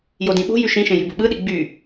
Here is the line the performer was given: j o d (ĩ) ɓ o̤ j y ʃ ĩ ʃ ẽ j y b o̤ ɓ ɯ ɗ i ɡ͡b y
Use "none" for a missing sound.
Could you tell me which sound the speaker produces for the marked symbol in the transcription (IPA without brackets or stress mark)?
ĩ